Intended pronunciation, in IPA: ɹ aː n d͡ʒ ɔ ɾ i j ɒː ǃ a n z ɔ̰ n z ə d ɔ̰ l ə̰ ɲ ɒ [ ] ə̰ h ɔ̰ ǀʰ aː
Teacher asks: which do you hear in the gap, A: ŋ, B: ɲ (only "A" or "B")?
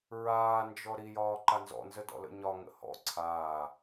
A